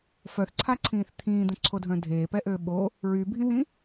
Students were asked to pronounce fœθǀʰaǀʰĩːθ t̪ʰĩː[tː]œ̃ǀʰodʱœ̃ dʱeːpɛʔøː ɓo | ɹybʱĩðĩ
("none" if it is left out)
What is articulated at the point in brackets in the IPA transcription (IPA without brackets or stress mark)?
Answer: d̪